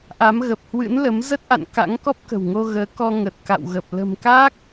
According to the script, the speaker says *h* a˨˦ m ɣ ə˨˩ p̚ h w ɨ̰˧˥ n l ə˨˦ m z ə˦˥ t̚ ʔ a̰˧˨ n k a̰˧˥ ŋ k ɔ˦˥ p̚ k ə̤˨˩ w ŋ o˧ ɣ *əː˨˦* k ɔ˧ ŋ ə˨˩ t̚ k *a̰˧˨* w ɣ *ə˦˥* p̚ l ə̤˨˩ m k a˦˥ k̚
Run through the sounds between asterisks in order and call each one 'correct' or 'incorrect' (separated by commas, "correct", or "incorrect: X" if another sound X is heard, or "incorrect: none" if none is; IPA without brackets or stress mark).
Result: incorrect: ʔ, correct, correct, incorrect: ə˨˩